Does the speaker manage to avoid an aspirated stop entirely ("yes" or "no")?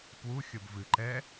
yes